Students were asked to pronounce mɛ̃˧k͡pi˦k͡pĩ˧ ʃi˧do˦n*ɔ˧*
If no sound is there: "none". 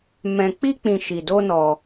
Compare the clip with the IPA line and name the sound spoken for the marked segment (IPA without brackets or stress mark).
ɔ˧